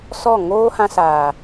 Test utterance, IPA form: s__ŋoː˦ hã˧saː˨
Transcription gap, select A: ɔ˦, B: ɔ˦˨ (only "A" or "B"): B